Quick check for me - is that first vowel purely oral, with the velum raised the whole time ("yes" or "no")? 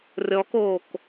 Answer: yes